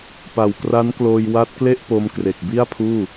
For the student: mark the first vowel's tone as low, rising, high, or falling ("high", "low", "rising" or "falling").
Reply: low